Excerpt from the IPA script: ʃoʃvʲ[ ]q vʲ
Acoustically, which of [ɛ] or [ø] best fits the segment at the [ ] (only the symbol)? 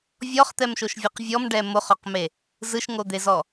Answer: ɛ